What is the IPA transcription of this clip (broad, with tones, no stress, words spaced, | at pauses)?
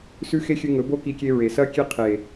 sʉ˦xe˦xʲɨ˧ ŋɵ˨˦bo˦ki˧kʲe˧ ɹe˨sɐ˦kʲe˦ qʰe˨